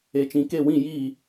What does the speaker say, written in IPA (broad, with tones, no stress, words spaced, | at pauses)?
e˨t͡ʃĩ˨ke˦˨wĩ˦˨ ji˦˨